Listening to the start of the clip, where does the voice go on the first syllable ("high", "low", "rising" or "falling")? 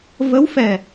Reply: rising